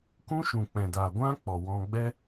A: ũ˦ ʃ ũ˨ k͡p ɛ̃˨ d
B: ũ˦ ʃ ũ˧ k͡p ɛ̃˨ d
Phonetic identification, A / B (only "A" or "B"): A